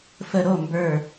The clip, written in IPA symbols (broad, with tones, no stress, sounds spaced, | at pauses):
f ə˧ ɾ o˦˨ m b ə˞˦˨